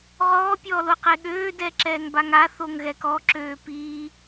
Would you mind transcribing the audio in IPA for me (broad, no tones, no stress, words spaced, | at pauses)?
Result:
ʁɔːpʲɔːloqe ɠøːdɛǁɛːŋ baŋa θoŋɣɛkɔǁøː piː